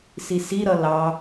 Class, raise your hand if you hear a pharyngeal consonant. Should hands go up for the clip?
no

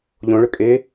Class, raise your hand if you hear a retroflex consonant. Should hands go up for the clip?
yes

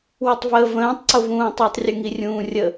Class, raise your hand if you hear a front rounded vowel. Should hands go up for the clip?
no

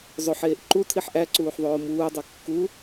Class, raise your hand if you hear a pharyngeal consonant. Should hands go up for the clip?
yes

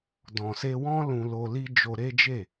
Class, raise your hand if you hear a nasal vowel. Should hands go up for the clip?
yes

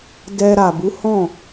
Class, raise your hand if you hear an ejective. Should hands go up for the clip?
no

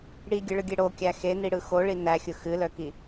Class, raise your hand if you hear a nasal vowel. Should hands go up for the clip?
no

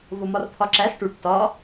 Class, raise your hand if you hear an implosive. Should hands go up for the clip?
no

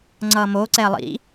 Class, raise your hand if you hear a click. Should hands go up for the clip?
yes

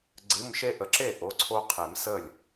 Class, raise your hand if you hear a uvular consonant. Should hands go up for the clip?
yes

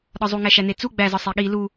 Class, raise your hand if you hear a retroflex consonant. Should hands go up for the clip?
no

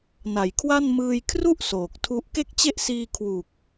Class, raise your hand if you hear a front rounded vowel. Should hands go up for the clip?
no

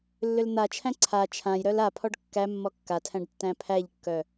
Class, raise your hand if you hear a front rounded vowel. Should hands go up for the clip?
yes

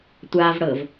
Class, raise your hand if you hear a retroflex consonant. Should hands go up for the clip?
yes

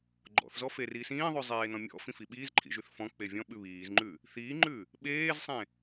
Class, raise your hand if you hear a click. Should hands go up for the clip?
yes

